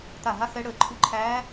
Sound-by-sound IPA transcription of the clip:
t̪ a˧˩ ɦ a˧˥ x ɛ˧˥ ɽ əː˧˩ ǃʰ u˧˥ ǃʰ æː˧˥

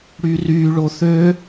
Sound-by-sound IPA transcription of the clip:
ɽ y r y ɭ o θ ø

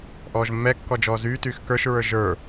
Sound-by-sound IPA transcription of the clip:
ʔ ɔː ʒ mː ɛ kː ɔ d͡ʒ ɔː z yː t yː x k ə˞ ʃ ɹ ə˞ ʒ ə˞

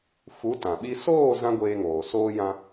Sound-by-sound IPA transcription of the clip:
f u˨˦ t ã˨ ɓ i˧ s oː˦˨ z ã˦ ɡʷ eː˧ ŋ oː˨ s oː˧ j ã˧

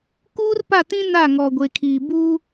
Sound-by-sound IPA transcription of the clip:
k uː˦ r p a˦˨ t ĩ˦ n a˦˨ ŋ ɔ˨ ɡʷ e˨ kʰ iː˨ b uː˦

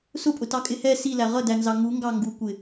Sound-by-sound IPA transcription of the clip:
s ʊ pʼ ʊ t ɑ kʼ ɪ h ɛ s i l æ ʁ ʌ d æ n z ɑ ŋ u ŋ ɡ ɑ ŋ ɡ u kʷ ɪ

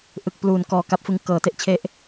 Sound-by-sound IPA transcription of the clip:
ʔ ɯ˨˩ k̚ p l uː˩˦ n k ɔː˨˩ k a˦˥ p̚ f ɯ˧ ŋ k ɤː˩˦ t e˥˩ ʔ t͡ɕʰ e˦˥ ʔ

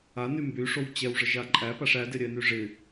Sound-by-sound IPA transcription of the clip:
a n y m b y ʂ o w t͡ɕ ɛ w ʐ ə ʒ a ǃʼ æ p a ʂ æ d ɪ ɾʲ ɛ n y ʐ ɪ

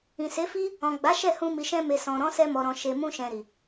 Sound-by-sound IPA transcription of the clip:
ĩ˨ s e˨˦ f i˦ | ɔ̃˨ ɡ͡b a˨˦ ʃ ɛ˦˨ h ũ˧ m i˨ ʃ ɛ̃˧ m e˨ s ɔ̃˨ ɾ ɔ̃˨˦ s ɛ˧ m ɔ˨ ɾ ɔ̃˨ ʃ e˨ m ũ˧ ʃ ɛ̃˨ ɾ i˨

